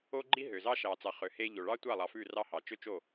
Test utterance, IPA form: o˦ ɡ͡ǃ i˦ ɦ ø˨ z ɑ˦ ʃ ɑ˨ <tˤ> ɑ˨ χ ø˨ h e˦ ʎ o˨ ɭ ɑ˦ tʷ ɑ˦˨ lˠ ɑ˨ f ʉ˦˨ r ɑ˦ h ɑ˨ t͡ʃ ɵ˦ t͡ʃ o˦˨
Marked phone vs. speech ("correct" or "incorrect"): incorrect